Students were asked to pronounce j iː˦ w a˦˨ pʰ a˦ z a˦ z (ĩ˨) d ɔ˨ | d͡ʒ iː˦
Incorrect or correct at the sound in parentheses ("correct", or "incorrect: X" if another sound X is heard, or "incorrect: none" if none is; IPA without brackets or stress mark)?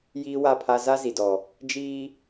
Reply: incorrect: i˨